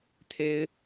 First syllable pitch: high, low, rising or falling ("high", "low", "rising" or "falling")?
high